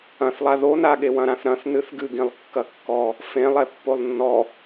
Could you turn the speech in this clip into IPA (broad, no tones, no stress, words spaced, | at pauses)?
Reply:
ɐ̃θlˠa ðonaɠe wɐ̃ɾãθɾɐ̃θ nɨθɡɨɡĩlˠ kːɐkːɔ | fẽlˠɛ pːolˠnːɔ